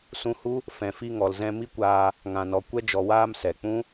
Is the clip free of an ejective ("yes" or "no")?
yes